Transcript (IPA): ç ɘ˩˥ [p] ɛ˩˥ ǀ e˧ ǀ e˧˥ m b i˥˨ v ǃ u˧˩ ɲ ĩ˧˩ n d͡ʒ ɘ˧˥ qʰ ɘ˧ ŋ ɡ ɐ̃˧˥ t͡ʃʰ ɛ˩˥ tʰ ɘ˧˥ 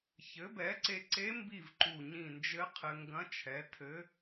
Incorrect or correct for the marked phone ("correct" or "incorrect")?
incorrect